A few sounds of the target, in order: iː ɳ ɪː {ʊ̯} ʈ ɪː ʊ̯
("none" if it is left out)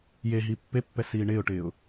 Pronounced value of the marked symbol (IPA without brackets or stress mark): ʊ̯